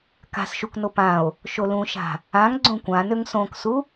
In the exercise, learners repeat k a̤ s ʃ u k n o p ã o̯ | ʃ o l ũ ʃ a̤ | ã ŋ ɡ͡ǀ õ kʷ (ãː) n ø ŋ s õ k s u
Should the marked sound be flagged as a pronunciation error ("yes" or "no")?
yes